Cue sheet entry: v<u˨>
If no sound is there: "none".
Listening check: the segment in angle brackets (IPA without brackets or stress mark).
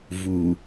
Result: u˨